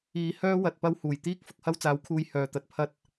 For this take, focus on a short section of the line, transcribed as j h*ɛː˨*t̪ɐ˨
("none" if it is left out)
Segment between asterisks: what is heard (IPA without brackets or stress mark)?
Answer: œː˨